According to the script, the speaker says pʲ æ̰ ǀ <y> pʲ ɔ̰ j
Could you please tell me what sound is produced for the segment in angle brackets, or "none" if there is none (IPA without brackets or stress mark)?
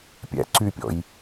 y